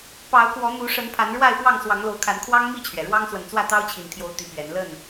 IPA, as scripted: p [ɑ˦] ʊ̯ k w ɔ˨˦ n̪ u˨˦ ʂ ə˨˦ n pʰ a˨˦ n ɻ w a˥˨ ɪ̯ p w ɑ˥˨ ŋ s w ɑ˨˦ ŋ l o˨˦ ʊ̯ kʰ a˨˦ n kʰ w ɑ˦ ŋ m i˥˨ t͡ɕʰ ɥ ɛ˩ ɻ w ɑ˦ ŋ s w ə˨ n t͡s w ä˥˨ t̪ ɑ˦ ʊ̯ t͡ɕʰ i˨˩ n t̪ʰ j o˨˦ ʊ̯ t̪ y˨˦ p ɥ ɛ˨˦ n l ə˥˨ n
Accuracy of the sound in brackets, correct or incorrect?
incorrect